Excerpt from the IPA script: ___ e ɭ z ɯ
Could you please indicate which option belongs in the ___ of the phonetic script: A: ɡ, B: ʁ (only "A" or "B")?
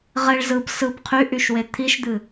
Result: B